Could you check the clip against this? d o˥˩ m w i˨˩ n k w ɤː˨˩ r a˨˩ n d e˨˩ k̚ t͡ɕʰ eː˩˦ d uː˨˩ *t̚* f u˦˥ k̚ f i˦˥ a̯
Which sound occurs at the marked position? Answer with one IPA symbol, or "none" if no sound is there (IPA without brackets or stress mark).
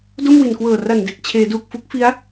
k̚